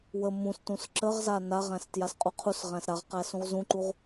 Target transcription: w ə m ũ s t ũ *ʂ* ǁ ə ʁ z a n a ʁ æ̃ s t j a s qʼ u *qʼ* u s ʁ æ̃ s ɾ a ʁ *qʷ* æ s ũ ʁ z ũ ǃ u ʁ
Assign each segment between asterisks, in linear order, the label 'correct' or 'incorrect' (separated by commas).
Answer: incorrect, incorrect, incorrect